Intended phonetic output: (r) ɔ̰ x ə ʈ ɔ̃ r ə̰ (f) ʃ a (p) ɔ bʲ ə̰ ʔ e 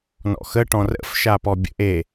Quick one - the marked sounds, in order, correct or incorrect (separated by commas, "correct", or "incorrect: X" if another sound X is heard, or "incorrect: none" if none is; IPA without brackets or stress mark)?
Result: incorrect: n, correct, correct